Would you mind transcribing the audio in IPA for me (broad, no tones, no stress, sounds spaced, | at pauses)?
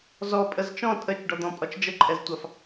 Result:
z ɔ pʼ ə z t͡ʃ ɔ̃ tʼ ə t͡ʃ ɖ ɔ d̪ ɔ̃ pʼ ɒ t͡ʃ d͡ʒ ə ǃʼ ɛ z tʷ ɑ f